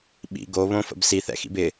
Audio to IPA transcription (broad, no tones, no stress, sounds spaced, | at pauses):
ɓ ḭ ɡ o β õ f ə̰ b s i θ ɛ̰ x ḭ b ɪ